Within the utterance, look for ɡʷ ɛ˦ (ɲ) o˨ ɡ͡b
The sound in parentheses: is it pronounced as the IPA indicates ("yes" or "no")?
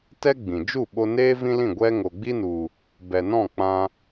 no